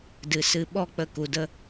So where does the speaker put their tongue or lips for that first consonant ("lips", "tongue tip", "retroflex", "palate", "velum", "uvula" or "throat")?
tongue tip